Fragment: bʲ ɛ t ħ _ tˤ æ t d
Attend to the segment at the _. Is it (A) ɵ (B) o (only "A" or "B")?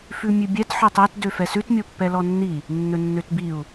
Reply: A